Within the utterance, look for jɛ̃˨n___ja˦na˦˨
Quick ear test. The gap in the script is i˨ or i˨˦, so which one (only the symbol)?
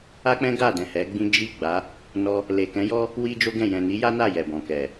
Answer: i˨˦